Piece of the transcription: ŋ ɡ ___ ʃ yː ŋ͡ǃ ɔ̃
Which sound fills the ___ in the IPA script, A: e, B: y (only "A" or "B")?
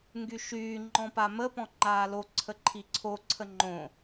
B